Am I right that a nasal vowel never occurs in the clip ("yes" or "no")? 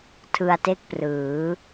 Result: yes